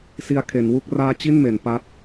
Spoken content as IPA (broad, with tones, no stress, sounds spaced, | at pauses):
s i˧ a̯ kʰ e˩˦ n w u˥˩ k̚ r aː˥˩ t͡ɕ i˥˩ n m e˩˦ n p a˦˥ t̚